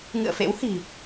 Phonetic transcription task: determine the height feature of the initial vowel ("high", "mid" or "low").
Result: high